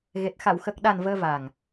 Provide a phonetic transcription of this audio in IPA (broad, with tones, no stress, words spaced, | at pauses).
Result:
ɣe˨˩t̚ xa˨˩˨wxə˨˩k̚ ɗa˨˩n vəː˧va˨˩ŋ